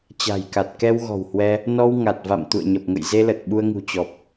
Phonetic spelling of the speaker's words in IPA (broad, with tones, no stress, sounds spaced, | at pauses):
t͡ɕ a̤˨˩ j k a˨˩ t̚ k ɛ˧ w ɣ ɔ̤˨˩ w h w ɛ˧ | n ɔ˧ w ŋ a˨˩ t̚ v a̰˧˨ m t̪ ṵ˧˨ ə̯ ɲ ə˨˩ p̚ ŋ ə̰˧˨ j z e˧ l ə˨˩ t̚ ɓ u˧ ə̯ ŋ ṳ˨˩ t͡ɕ ɔ˨˩ p̚